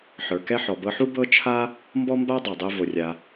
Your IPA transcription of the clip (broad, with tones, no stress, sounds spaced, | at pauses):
ħ ə˞˩ k ɛ˥ ħ ɔ˩ b ɤ˧ ħ u˥ b ɤ˥ t͡ʃʰ a˥ | m b ɔ˥ m b a˥ dˤ a˩ dˤ ɛ˧ v o˩ rʲ a˩